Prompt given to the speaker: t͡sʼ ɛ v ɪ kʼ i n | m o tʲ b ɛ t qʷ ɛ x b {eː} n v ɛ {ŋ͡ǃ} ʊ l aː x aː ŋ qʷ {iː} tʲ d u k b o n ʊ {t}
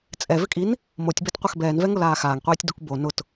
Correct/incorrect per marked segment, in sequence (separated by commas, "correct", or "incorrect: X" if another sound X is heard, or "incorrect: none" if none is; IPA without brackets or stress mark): incorrect: ɛː, incorrect: ŋ, correct, correct